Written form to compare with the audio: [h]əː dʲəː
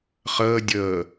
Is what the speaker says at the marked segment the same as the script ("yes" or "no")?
no